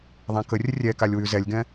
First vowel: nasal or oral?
nasal